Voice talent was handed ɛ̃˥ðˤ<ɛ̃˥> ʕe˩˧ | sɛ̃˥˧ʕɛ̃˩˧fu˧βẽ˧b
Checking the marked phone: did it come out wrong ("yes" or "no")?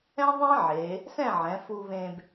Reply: no